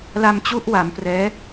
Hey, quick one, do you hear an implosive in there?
no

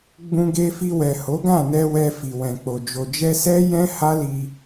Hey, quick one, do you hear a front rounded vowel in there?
no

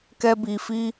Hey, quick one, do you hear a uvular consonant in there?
no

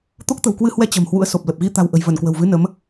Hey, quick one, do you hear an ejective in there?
no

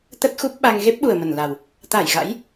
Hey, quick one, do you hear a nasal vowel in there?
no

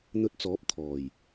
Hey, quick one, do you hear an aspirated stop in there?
yes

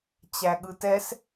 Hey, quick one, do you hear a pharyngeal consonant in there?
no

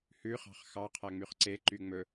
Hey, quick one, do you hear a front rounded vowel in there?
yes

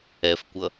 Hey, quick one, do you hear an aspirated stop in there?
no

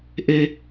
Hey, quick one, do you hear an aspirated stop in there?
no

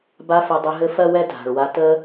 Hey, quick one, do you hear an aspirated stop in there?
no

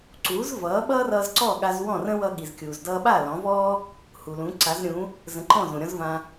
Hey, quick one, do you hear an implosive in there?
yes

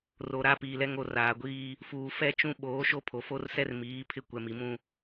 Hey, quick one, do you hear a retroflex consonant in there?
no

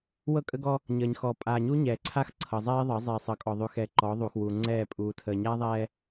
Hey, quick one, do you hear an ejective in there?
yes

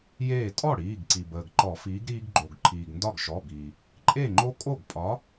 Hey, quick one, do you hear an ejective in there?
yes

